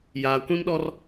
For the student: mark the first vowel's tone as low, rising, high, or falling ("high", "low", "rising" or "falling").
low